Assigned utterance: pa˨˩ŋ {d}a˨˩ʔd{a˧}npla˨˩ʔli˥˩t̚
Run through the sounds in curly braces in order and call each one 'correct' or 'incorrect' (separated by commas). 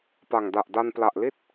correct, correct